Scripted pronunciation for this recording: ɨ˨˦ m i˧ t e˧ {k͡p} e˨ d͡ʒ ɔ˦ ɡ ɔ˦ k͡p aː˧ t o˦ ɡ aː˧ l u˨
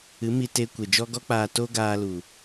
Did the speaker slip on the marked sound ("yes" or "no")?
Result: yes